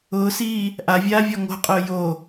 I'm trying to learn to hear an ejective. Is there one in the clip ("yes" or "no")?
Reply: yes